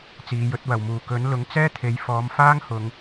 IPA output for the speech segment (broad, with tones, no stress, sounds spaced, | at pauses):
t͡s iː˨˧ j ɵ˨˥ t̚ w ɐ˨˩ w m uː˨˩ k ɵ˨˥ n l ʊ˨˥ ŋ t͡s ɛː˥ t̪ʰ e˨˧ j f ɔː˨˧ m f aː˥ ŋ h ʊ˨˧ ŋ